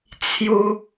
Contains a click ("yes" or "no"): no